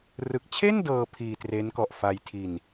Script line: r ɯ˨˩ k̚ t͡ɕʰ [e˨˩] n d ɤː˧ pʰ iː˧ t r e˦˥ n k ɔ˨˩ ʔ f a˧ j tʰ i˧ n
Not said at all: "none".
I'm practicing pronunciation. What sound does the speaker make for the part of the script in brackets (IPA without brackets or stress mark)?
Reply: e˥˩